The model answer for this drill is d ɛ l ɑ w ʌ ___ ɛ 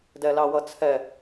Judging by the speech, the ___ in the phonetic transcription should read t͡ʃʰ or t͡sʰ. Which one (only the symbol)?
t͡sʰ